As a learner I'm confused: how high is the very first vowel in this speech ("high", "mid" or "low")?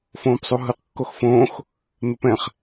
mid